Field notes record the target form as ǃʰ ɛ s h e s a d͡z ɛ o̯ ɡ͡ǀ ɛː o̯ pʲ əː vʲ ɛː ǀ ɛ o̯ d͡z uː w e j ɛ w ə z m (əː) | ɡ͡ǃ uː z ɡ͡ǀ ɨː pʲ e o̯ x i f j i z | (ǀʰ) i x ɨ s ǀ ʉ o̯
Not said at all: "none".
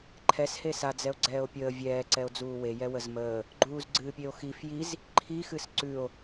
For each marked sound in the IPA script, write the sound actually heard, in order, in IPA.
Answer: əː, ǃʰ

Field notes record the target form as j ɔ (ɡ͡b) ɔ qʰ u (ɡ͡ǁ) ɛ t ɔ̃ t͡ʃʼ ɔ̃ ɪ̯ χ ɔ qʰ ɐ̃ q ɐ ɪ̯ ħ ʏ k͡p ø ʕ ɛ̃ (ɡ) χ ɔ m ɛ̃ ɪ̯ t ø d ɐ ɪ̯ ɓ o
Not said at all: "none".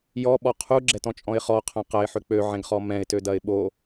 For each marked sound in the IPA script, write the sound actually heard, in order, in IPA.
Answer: ɓ, ɡ͡ǁ, ɡ

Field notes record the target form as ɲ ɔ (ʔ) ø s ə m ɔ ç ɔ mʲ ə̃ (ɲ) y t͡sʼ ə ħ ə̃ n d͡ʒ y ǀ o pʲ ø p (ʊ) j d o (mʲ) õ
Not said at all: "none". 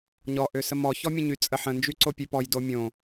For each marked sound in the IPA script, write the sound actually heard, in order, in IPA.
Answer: ʔ, ɲ, ɔ, mʲ

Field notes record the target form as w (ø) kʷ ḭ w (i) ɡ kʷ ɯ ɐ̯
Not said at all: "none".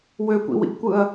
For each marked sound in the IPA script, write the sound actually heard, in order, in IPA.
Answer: ø, ḭ

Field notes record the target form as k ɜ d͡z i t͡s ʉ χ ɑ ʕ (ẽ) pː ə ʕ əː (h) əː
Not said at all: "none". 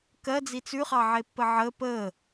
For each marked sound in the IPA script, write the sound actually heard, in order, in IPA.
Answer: e, p

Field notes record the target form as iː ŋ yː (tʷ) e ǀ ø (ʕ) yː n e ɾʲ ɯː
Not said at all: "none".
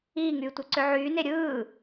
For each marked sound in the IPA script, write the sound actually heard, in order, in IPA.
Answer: tʷ, ʕ

